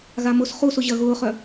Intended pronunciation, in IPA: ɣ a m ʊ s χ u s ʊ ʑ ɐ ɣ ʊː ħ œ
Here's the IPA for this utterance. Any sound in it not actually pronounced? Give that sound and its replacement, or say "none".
ħ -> χ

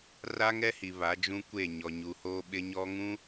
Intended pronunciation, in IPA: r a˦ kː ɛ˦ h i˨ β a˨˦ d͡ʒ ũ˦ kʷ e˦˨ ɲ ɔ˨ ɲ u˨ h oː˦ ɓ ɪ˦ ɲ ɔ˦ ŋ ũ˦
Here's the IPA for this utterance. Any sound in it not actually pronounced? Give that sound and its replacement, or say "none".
kː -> ŋ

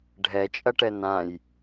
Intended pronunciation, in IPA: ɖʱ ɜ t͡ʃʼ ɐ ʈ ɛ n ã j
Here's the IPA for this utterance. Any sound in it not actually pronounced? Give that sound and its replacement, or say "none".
ɜ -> ɛ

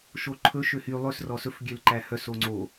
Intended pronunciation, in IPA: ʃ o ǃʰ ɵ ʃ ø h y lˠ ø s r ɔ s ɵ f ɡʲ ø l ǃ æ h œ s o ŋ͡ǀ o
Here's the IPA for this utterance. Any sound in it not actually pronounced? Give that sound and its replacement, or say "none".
none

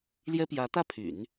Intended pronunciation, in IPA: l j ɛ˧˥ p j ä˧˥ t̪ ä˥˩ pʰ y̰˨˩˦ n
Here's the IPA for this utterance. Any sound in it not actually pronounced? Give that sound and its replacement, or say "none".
ɛ˧˥ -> ɛ˥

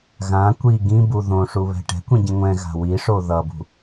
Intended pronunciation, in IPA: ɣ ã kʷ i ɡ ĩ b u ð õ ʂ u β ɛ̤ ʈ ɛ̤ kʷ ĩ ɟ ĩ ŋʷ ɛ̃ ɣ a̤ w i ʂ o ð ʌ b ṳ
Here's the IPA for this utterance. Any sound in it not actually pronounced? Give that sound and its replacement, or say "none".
none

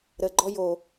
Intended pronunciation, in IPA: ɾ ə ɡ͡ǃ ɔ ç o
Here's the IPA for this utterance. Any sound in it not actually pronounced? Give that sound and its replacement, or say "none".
ç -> j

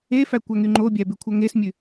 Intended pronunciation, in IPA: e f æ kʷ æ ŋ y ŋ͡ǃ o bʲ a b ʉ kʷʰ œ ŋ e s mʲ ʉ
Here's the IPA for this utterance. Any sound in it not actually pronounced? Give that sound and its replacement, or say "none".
a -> æ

